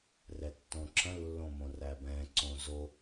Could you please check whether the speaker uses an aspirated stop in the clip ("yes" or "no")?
yes